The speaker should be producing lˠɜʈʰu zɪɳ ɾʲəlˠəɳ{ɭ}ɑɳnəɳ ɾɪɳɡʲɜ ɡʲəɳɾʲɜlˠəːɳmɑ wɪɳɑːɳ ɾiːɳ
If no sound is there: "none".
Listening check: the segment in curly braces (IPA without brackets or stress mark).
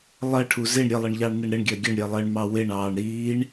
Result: ʎ